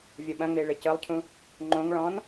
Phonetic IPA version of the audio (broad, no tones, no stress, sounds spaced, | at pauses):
vʲ o ɓ ɐ̃ ŋ͡m e ɭ ɘ c ɤ lˠ cʰ ũ | ŋ͡ǃ õ ŋ ɭ ɔ̃ n